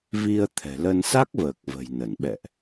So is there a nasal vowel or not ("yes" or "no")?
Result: no